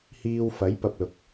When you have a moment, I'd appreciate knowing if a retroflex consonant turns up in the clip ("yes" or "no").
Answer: no